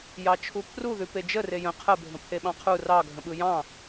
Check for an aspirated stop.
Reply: present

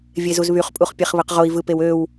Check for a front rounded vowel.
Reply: present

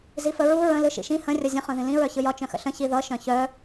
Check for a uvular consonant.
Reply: present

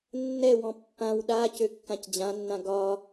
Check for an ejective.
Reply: absent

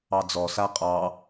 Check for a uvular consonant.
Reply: present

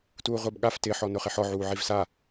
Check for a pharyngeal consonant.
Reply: present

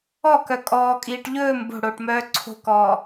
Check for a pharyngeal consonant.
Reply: absent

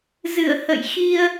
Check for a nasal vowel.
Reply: absent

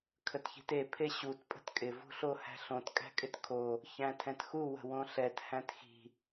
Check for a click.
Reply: absent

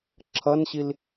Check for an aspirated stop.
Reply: present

